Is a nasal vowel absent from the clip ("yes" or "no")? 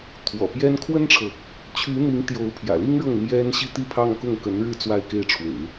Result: yes